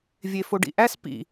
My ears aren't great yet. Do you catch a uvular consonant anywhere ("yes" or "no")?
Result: no